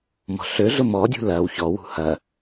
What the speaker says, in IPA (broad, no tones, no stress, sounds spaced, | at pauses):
m ɔ̤ ɬ ø ɮ ʊ m ɔ dʲ ṳ l ɐ w ç ɔ w ṳ h ɐ